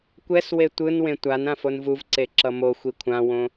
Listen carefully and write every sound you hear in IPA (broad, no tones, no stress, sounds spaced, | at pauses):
kʷ ɛ s w e tʷ ɯ n w ẽ tʷ a n ã f o n v u v ǀ e ǁ ʌ m o xʷ i kʷʰ ã w õ